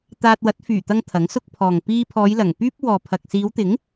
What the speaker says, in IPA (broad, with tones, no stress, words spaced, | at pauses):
t̪aː˧t̚wɐ˨˥t̚ fyː˨˩ t̪ɐ˧ŋ t̪ʰɐ˨˥ŋsʊ˥k̚pʰɔː˨ŋ piː˧pʰɔː˨˧j lɐ˨˩ŋ pyː˥p̚wɔː˨pʰɐ˨k̚ siː˨˧wt̪ɪ˨˥ŋ